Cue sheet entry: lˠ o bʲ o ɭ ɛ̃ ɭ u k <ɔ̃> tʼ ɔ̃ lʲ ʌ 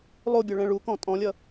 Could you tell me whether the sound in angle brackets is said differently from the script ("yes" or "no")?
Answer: no